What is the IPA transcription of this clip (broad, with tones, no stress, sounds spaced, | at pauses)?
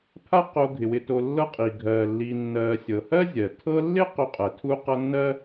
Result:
pʰ a˦ q o˨ ɡʱ ɪ˩ w ɪ˨ t o˨ lː ɤ˦ qʼ i˩ ɡʱ ɜː˩ lː iː˨ nː ɜː˨ sʲ ɤ˩ h ɜ˥ zʲ ɜ˩ tʰ ɤ˦ lː ɪ˥ q o˦ qʼ ɜ˩ tʰ u˥ q ʌ˦ nː ɜ˥